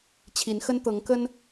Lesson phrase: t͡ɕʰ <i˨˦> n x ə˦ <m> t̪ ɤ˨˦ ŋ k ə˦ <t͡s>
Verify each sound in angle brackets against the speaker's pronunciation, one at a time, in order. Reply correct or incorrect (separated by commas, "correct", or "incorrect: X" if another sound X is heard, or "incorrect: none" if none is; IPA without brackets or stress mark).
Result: correct, incorrect: n, incorrect: n